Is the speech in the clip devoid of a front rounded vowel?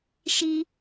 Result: yes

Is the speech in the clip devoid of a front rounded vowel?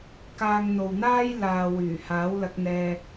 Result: no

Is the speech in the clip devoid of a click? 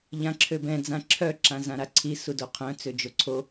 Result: no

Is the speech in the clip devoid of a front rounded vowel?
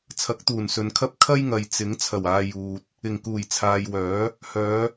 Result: no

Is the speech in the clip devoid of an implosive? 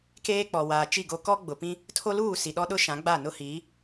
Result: no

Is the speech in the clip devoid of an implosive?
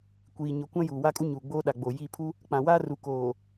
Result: no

